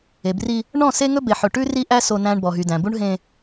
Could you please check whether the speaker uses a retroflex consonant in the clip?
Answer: yes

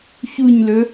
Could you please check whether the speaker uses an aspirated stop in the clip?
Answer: no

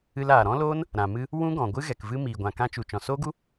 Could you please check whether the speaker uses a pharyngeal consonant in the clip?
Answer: no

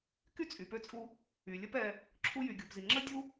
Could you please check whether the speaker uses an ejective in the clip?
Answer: yes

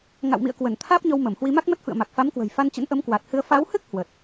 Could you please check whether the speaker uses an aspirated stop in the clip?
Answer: yes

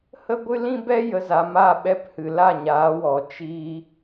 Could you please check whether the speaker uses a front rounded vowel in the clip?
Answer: no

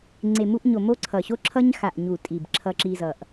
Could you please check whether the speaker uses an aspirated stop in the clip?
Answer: yes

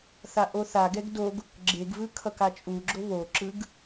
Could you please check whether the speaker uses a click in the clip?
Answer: yes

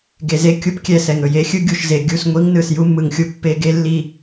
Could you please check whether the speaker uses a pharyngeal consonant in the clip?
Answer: no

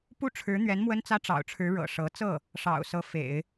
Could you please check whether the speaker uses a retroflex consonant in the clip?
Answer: yes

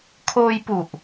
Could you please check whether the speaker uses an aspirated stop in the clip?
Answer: yes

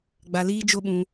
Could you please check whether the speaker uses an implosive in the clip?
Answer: yes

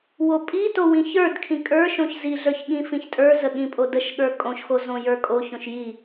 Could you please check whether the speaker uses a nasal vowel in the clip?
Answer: yes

